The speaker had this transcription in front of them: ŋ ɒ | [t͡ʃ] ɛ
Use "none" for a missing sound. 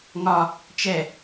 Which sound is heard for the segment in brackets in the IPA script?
t͡ʃ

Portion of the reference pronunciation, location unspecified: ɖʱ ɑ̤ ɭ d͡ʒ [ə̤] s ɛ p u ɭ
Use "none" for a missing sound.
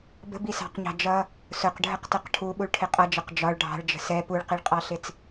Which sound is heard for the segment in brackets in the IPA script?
ə̤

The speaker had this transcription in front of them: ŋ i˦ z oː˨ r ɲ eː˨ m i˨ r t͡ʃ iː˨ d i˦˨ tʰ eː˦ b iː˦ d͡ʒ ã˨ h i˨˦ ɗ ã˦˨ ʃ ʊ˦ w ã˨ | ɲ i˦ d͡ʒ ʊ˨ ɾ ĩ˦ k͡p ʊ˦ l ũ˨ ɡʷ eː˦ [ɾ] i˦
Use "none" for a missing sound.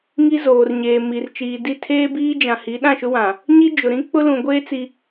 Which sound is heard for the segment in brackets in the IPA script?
t͡s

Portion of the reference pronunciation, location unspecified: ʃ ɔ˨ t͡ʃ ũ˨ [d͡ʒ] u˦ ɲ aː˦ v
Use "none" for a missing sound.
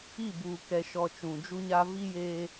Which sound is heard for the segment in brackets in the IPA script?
d͡ʒ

